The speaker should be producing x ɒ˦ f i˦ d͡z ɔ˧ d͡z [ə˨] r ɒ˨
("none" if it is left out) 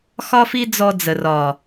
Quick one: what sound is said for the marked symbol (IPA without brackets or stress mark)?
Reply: ə˨